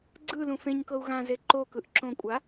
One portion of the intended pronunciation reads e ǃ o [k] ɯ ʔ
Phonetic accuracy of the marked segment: correct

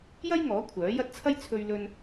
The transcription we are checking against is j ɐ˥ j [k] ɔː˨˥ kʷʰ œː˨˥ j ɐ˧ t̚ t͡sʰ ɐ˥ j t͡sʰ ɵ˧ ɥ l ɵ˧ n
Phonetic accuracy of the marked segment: incorrect: ŋ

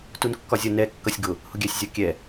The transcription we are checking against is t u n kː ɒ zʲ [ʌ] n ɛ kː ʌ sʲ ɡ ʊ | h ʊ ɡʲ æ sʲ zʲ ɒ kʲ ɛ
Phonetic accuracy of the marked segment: correct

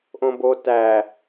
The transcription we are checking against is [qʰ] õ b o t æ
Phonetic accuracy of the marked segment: incorrect: ʔ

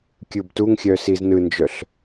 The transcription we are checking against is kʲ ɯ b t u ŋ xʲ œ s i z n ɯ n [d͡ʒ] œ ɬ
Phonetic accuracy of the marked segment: correct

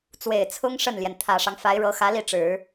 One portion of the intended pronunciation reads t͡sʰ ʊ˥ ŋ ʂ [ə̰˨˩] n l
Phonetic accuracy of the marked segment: incorrect: ə˥˩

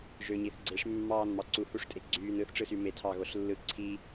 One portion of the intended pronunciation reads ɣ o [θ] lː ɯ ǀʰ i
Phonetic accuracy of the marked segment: incorrect: ɬ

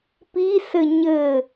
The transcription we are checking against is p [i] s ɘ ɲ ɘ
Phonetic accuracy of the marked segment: correct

